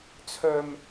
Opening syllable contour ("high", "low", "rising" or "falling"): low